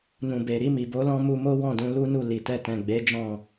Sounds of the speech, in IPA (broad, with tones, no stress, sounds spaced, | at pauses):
n ũ˨ b e˨ ɾ i˧ m i˨ b o˨˦ l ɔ̃˧ m u˧ m o˦ w ɔ̃˦˨ d ũ˧ l u˦ n u˦˨ l i˨ t ɛ˧ t ɛ̃˨ ɡ͡b e˨˦ d͡ʒ ɔ̃˦˨